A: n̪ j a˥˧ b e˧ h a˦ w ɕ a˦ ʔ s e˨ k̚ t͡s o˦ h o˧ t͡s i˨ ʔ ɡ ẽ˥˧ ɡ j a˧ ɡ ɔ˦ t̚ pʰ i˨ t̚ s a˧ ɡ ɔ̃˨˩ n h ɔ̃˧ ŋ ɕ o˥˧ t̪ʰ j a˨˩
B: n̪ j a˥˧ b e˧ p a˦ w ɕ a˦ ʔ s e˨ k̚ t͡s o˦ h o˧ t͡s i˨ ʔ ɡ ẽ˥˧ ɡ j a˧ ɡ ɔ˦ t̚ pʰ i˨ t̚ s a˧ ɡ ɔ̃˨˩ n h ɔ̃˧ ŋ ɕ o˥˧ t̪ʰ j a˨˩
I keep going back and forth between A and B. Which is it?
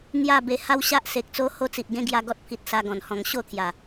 A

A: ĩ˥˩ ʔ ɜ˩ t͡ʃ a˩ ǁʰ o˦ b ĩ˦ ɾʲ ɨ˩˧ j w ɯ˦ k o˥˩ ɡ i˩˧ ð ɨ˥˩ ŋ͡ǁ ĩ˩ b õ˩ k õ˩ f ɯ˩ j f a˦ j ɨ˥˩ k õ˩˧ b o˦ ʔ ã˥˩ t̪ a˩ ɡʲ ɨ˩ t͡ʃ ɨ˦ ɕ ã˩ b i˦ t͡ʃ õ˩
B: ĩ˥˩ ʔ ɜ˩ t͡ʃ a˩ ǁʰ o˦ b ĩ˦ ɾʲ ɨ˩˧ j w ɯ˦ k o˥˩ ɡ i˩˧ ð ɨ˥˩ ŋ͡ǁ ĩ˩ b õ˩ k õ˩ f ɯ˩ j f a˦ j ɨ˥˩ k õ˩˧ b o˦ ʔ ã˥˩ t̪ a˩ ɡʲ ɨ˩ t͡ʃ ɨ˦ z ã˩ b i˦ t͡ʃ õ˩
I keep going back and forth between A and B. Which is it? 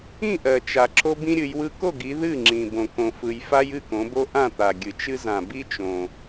B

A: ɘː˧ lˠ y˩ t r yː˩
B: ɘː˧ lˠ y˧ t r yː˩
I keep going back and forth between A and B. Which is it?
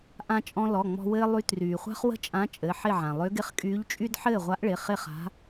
B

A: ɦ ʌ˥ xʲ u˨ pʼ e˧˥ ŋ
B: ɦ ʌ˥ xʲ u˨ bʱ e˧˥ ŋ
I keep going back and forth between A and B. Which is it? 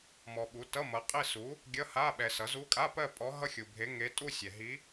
B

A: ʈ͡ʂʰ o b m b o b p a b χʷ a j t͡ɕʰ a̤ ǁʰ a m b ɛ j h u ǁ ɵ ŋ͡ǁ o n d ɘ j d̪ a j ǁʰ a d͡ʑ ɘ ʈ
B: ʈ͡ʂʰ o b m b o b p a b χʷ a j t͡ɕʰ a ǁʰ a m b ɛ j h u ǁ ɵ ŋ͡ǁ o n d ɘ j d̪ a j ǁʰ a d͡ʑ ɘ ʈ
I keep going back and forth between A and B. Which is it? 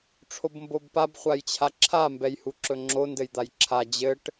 B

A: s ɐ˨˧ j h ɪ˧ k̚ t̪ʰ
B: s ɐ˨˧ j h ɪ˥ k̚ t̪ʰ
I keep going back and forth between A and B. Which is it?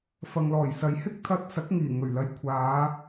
A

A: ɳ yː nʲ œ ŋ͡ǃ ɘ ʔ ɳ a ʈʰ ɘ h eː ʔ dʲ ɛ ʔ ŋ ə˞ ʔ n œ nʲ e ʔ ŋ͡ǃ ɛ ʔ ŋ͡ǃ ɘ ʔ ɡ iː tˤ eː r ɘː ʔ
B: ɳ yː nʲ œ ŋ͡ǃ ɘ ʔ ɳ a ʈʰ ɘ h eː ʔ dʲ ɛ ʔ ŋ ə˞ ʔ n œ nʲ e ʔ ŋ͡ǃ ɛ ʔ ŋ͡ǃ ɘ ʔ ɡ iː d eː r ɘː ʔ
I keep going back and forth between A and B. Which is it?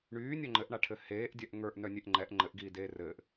B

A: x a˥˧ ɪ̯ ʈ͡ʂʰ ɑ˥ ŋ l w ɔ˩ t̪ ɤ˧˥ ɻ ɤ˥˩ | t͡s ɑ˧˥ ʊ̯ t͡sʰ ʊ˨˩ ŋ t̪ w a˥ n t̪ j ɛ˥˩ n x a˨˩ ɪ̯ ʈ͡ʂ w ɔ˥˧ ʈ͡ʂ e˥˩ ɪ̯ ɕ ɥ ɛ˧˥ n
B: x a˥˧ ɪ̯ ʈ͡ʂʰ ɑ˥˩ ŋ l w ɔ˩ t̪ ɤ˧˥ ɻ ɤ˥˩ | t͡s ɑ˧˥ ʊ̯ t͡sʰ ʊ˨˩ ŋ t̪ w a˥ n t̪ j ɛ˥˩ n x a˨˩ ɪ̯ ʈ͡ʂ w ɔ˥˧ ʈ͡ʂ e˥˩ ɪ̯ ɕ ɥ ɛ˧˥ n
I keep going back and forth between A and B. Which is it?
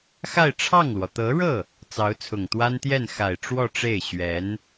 B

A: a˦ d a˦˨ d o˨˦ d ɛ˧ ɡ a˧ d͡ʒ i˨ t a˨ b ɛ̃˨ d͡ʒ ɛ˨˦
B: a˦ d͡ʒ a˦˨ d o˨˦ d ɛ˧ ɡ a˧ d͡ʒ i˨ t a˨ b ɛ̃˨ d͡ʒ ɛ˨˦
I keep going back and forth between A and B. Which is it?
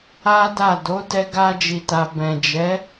A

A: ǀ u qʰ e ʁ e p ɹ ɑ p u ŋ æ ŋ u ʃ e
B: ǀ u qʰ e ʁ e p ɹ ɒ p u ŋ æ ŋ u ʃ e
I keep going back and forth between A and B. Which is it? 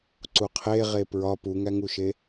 B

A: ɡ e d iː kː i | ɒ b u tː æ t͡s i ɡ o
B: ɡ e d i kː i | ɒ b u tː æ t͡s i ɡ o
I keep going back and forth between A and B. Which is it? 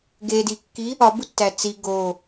B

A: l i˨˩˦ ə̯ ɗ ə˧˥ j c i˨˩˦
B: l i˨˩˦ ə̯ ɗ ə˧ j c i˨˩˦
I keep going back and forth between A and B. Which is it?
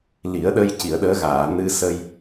B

